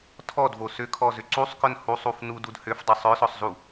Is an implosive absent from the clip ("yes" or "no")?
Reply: yes